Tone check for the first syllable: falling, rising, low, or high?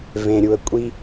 low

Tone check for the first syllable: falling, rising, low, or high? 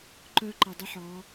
high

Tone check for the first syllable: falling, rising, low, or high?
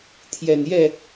low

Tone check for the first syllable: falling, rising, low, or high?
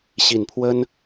low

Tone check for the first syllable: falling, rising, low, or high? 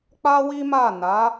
high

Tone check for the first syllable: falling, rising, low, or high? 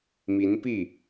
rising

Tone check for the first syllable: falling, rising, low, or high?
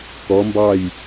rising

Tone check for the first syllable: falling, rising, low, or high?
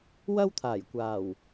high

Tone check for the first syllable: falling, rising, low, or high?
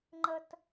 high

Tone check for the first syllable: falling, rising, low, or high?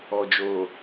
low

